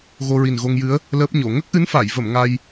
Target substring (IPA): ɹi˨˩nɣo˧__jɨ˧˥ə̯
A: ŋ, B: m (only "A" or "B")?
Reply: A